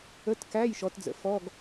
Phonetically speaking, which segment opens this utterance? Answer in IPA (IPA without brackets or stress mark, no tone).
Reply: ə